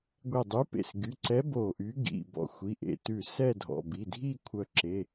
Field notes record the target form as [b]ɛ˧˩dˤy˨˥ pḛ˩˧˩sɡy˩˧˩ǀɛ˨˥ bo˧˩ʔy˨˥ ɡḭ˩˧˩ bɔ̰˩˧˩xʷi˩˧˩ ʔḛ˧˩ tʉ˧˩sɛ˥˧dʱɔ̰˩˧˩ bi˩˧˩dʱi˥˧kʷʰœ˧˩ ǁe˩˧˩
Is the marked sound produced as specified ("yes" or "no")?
no